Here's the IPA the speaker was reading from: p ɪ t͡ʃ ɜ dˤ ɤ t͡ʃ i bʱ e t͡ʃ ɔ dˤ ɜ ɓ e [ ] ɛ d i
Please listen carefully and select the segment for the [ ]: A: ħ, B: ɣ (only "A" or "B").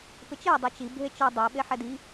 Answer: A